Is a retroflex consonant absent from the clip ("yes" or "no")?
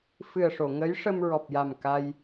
no